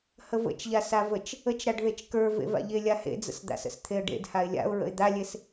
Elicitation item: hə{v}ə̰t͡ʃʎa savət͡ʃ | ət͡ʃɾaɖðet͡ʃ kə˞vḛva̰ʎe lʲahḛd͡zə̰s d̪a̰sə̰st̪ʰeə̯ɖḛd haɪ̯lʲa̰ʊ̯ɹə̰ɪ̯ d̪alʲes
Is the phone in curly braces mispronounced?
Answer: no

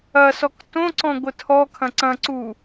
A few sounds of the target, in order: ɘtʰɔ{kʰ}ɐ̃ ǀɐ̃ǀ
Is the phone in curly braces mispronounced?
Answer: no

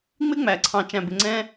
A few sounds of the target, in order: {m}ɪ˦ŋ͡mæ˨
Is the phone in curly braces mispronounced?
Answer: yes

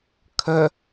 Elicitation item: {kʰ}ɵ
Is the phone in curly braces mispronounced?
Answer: no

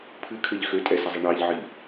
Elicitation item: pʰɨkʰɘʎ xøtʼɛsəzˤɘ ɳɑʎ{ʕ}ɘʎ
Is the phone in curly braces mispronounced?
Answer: no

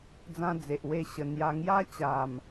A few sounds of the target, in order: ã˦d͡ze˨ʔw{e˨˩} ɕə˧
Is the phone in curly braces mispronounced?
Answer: yes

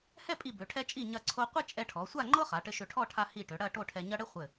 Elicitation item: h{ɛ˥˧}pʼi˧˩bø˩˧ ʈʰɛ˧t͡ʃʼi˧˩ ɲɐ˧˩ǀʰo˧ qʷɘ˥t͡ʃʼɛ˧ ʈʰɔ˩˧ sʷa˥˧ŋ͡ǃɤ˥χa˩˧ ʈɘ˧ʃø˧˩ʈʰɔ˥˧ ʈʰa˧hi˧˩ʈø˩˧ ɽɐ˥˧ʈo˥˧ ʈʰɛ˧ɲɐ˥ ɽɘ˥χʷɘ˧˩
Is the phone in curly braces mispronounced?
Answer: no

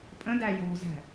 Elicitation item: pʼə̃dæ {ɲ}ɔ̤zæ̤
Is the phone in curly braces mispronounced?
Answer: yes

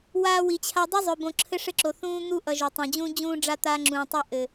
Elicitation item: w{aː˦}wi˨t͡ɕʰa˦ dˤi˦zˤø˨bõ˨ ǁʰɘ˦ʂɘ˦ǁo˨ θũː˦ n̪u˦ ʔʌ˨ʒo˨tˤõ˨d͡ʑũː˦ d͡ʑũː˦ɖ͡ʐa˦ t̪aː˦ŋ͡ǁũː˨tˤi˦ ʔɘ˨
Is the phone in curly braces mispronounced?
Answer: no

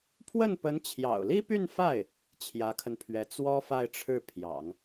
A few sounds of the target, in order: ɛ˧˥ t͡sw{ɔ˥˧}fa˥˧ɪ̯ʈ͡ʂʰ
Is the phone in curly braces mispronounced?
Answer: yes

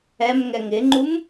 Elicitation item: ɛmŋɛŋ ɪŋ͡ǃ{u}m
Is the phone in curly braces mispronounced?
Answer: no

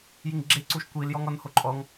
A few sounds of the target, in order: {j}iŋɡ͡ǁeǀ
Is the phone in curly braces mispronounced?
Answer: no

